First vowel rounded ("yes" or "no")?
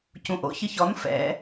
yes